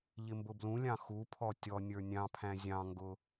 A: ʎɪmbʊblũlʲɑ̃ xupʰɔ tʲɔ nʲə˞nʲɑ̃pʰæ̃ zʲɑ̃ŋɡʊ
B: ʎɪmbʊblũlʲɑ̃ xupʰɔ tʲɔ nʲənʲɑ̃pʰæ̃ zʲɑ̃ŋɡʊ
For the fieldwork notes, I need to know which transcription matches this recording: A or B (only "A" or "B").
A